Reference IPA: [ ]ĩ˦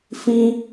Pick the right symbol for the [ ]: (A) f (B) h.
A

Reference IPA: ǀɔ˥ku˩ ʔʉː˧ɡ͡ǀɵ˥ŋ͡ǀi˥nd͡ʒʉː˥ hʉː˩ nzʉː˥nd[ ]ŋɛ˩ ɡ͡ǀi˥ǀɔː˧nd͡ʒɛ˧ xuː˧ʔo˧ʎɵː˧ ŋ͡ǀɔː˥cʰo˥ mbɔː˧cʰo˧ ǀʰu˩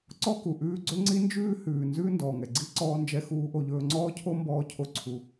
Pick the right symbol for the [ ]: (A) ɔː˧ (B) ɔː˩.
B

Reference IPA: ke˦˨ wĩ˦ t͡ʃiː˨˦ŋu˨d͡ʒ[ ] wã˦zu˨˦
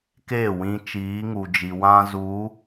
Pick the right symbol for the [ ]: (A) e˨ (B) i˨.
B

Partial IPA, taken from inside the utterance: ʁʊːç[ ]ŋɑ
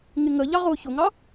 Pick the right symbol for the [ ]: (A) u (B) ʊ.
B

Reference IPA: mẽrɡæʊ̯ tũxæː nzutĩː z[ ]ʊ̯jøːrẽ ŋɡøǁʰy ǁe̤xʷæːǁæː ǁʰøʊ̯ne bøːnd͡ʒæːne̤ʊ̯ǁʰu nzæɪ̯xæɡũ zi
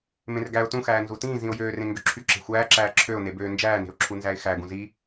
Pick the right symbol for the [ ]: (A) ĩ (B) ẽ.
A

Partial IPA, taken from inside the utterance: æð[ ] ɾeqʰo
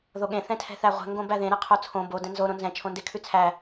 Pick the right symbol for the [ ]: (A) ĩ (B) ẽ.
B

